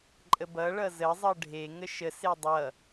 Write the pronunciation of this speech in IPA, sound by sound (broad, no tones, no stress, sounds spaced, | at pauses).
ǃʼ ə b ʌ ɭ ʌ z ə zˤ ʌ ɖʱ e ŋ ə ʃ ə s e dˤ ʌ